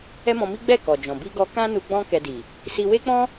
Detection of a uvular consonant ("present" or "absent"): absent